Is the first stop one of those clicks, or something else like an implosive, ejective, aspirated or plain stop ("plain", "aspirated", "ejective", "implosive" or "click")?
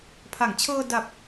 aspirated